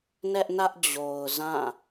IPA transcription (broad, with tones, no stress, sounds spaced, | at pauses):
n ɛ˦ ʔ n ä˦ ʔ d͡ʑ o˨ ʊ̯ z ã˦˨